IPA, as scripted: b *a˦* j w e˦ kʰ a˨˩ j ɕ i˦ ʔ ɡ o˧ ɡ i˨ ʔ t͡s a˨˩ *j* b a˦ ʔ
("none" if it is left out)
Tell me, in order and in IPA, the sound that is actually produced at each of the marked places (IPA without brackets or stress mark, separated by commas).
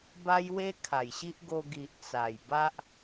a˦, j